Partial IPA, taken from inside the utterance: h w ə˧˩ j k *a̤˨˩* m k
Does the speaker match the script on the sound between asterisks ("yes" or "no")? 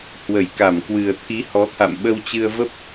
no